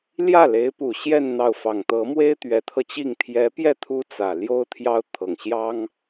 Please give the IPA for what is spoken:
ljä˥˩le˧˥ɪ̯pu˨˩ ɕjɛ˥˧n n̪ɑ˥˩ʊ̯ fɑ˨˩ŋt̪ɤ˧˥mwe˥ɪ̯ t̪ɥɛ˧˥t̪ʰɤ˧t͡ɕi˥˩ŋ t̪ʰjɛ˧˥pjɛ˥˩ t̪ʰu˥t͡sä˨˩ ljo˥ʊ̯t̪ʰjɑ˥ʊ̯t̪ʰɤ˨˩ŋ ɕjɑ˥ŋ

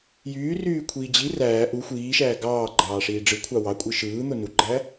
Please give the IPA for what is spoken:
jyːryːkʷʰiː d͡ʑi ræː ʔu xʷiːʃæː ɡɑːɡ͡ǃɑːʂiː ɖ͡ʐɯkʷʰɑ wɑkʷʼɯ ʃɯːn̪o nuɡ͡ǃæ

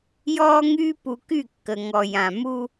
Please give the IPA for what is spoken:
jɔː˦ŋyː˦ pu˨ky˦˨ kːə˨ŋɔ˨ jã˨ mu˦

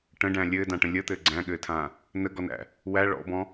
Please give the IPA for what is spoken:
ʈə̃ɖæ̃ lʲɘːdãʈə̃ lʲət̪ɘː ɡ͡ǀæ̃ɠɘːtʰãː | nəɡɔnæ̰ | wæ ɭɔ̰bɔ̃

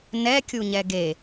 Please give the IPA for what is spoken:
nɛkʲuɲɛ ɡe

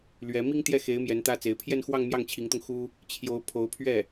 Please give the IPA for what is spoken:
lɥɛ˧˥ mi˥ŋt̪jɛ˥˩xe˧˥ɪ̯ mjɛ˧˥nt̪ä˥t͡se˧˥ɪ̯ pʰjɛ˥˧nxwɑ˥˧ŋ mjɑ˥˩ŋt͡ɕʰi˧˥ŋt̪ʊ˧ŋ xu˥ | t͡ɕʰjo˧˥ʊ̯ pʰo˧˥ʊ̯pʰɥɛ˥˩

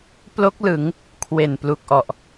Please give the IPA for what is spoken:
plo˦˥k̚ lɯ˩˦ŋ | kʰwe˨˩nplu˨˩k̚ʔɔ˨˩ʔ

